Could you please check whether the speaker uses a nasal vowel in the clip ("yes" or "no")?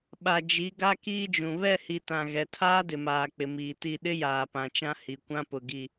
yes